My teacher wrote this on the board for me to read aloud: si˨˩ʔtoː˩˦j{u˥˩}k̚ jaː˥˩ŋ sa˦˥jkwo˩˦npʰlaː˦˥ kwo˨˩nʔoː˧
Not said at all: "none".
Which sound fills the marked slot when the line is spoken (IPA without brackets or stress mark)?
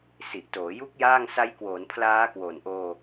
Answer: u˦˥